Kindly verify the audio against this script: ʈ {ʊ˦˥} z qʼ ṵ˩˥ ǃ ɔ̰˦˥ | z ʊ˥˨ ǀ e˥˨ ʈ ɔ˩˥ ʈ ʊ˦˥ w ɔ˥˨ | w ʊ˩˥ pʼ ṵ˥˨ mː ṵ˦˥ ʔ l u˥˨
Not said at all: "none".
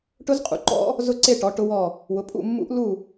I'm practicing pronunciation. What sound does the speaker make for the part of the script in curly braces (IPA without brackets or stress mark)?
ʊ˦˥